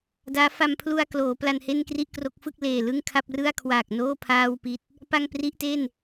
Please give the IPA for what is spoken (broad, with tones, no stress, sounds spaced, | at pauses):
d aː˦˥ f a˧ m pʰ l u˧ a̯ k l oː˩˦ p l a˧ n h e˥˩ n k r i˥˩ ʔ k r o˦˥ k̚ f ɯ˥˩ k̚ l eː˨˩ l ɯ˥˩ ŋ kʰ a˥˩ p̚ r ɯ˥˩ a̯ kʰ w aː˨˩ k̚ n oː˥˩ pʰ aː˥˩ w p i˦˥ t̚ | p a˥˩ ŋ p r i˥˩ ʔ t e˥˩ n